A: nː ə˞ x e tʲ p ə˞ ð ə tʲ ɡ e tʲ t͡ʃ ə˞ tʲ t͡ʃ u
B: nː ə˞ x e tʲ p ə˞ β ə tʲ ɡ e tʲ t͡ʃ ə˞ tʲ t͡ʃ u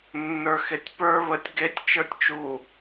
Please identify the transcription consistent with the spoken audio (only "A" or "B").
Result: B